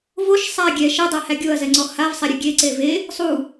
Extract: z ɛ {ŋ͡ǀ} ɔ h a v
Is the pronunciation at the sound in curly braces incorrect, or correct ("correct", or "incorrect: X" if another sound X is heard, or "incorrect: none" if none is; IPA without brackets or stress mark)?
correct